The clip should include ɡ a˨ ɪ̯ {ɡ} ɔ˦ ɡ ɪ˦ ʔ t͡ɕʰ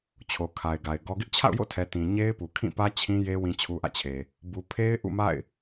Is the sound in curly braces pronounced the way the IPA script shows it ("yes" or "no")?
yes